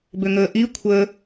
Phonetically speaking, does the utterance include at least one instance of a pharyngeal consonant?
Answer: no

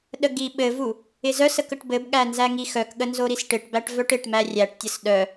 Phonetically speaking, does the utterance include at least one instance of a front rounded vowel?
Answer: yes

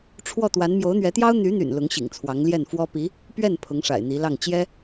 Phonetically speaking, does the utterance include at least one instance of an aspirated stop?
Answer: yes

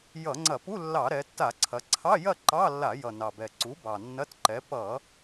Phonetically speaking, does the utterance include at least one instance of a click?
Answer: yes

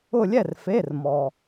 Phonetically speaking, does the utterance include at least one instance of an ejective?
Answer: no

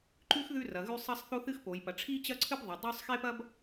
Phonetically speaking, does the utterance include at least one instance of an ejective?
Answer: no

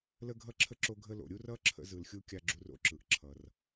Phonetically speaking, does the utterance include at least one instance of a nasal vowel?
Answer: no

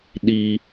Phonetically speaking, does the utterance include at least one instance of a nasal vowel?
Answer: no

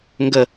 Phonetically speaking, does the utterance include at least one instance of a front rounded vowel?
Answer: no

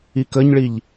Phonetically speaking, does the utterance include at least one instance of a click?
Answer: no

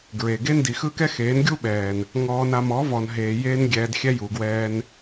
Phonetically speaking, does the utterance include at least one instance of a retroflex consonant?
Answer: no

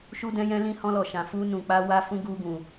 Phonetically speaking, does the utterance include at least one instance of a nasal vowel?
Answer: yes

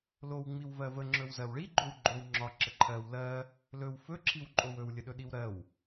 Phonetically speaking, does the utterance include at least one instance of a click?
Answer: yes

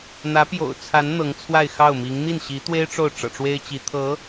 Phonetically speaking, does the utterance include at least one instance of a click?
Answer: no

